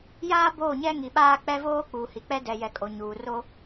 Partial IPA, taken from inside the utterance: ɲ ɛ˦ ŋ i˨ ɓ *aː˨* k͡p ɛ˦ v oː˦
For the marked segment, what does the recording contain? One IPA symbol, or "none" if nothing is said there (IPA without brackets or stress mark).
aː˦